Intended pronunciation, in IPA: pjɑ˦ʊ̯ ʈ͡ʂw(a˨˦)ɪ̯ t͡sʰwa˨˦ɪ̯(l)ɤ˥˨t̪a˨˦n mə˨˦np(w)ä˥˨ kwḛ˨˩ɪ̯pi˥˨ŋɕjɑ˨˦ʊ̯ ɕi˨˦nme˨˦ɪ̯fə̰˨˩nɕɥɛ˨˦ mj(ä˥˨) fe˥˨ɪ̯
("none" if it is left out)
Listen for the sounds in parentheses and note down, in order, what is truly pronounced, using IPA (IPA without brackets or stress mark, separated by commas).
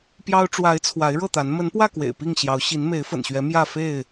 a˨˦, ɻ, w, ä˥˨